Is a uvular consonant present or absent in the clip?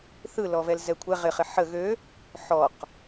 present